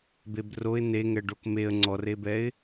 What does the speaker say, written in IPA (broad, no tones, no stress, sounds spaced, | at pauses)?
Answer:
b e b r o ɪ̯ n e ŋ ɛ ɖ o k m e ə̯ ŋ͡ǀ ɔ r e b ɛ ɪ̯